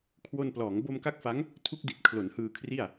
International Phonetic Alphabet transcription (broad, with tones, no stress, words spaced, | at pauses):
kʰwo˧nplɔː˩˦ŋ bo˧mka˦˥k̚fa˦˥ŋ | tʰu˦˥k̚di˨˩t̚ kʰlo˩˦nhɯː˧kʰri˥˩a̯